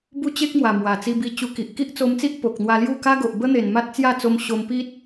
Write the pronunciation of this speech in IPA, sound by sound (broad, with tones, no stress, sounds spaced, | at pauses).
b u˦ t͡ɕ e˦ k̚ m w a˨˩ m w a˨˩ t͡s i˧ b i˧ t͡ɕ u˧ k i˨ ʔ k i˦ ʔ t͡s o˧ m t͡s i˦ ʔ p o˨ k̚ n̪ w a˧ l j u˥˧ k a˦ ɡ o˨ ʔ b ə˦ n̪ e˨˩ n m a˦ t̚ t͡s j a˥˧ t͡s o˧ m ɕ o˧ m p i˦ t̚